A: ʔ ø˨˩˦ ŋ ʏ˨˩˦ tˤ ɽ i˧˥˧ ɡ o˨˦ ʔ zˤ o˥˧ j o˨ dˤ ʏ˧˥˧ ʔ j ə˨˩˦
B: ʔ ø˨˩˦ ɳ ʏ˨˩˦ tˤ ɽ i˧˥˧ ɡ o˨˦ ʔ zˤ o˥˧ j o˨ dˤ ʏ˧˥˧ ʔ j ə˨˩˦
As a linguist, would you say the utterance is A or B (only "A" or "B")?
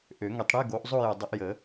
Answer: A